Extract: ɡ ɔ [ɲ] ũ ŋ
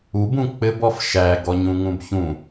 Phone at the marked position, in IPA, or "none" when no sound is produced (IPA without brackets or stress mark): ɲ